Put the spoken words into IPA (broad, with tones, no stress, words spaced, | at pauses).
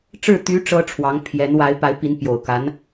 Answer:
ʈ͡ʂɻ̩˥˩ t̪y˧˥ ʈ͡ʂɤ˥ʈ͡ʂʰwɑ˧˥ŋpʰjɛ˧˥n wa˧˥ɪ̯pa˧˥ɪ̯ pi˧˥npjo˨˩ʊ̯ka˧˥n